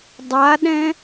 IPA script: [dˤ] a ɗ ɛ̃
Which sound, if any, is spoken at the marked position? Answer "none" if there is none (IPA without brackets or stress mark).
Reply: dˤ